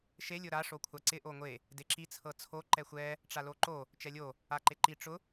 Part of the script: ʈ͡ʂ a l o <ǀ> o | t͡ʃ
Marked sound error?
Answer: yes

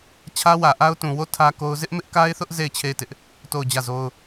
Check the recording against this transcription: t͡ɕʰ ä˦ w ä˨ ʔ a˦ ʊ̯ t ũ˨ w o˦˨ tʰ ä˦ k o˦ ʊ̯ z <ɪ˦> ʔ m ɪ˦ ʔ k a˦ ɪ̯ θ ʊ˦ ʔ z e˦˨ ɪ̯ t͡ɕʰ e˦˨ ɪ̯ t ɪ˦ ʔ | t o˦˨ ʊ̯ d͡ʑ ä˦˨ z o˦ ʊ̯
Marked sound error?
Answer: no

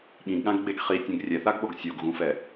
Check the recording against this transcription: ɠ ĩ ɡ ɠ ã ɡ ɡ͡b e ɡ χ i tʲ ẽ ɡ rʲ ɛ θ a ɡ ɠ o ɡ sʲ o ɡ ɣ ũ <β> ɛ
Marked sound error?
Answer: yes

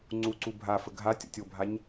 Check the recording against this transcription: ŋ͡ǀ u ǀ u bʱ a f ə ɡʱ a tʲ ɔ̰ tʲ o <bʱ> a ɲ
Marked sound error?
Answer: no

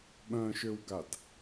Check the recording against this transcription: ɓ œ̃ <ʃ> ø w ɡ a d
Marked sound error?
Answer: no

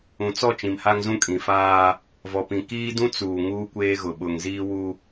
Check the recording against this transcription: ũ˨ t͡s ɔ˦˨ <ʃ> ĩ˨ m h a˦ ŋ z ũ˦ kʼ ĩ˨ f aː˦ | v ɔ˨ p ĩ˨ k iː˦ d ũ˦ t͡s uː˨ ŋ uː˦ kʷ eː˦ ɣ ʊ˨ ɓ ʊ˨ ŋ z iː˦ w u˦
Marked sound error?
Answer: yes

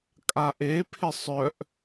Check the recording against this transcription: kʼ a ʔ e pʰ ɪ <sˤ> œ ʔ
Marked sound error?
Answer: no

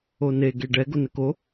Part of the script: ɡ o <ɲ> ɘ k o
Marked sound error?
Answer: yes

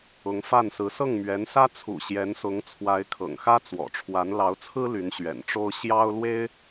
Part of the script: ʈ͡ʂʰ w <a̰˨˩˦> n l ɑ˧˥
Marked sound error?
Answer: yes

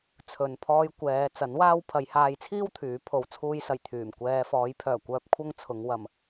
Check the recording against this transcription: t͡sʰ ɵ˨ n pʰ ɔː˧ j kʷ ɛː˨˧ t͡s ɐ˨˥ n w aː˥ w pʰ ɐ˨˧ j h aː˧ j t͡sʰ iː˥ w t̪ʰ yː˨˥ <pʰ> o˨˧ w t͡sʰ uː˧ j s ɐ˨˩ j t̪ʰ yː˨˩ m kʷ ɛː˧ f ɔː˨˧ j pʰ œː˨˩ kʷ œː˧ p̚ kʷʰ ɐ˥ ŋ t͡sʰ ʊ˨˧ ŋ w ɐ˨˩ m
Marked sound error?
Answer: no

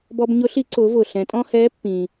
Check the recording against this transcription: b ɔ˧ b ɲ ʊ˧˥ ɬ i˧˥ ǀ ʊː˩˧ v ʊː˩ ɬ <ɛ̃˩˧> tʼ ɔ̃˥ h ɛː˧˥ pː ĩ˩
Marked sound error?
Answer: no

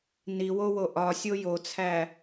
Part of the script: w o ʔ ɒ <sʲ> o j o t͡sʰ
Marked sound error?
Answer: no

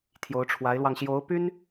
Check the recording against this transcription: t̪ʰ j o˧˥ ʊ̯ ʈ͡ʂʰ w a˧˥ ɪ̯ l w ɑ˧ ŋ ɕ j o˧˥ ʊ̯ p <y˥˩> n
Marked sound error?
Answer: yes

